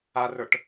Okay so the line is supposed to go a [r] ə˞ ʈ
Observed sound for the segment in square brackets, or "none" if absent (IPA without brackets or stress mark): r